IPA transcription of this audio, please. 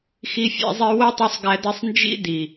xi˦fʲæ̰˦zˤi˦ wo˦tˤu˧sˤɡæ˧de˧sˤ nd͡ʒḭ˦ di˨

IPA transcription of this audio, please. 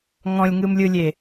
ŋɔ̃lʲŋɯmlʲɯlʲe

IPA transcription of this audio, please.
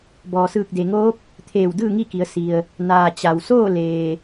bɔː˩sɯː˧˩k̚de˩ŋoː˧˥p̚ | t̪ʰeː˧˩w dɯː˥˨ŋi˥˨ki˩˧ə̯ si˩ə̯ | naː˩ t͡ɕa˩w soː˥˨leː˩

